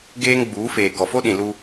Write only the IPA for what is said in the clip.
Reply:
ɡ eː˦ ŋ ɡ͡b uː˨˦ f eː˨ ɡ ɔ˨ f o˦ ɗ ĩ˨ l u˦

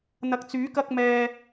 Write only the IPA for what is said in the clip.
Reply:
n̪ ɐ˨ k̚ t͡s yː˨˥ k ɐ˧ k̚ m ɛː˨

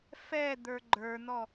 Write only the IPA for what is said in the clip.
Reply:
f ɛ d̪ ə˞ ɡ͡ǃ ə˞ n̪ ɔ

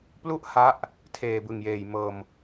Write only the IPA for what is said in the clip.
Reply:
p l u˥˩ ʔ h a˦˥ ʔ | tʰ eː˨˩ b ɯ˨˩ ŋ j eː˨˩ j m ɤː˧ m

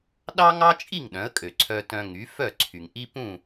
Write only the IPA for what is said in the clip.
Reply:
ɗ ɑ˥ ŋ ɑ˥ t͡ʃʼ i˥˩ ŋ ɗ œ̃˩˥ ə̯ kʼ ø˩ ǀʰ œ˧ t œ̃˧ ŋ y˩˥ f œ˥˩ ǀʰ y˩ ŋ ʔ i˥ p ũ˥˩

